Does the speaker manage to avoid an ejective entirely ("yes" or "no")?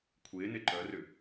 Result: yes